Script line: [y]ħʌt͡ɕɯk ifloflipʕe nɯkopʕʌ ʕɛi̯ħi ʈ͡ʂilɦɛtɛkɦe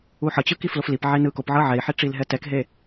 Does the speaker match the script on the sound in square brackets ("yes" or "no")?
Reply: no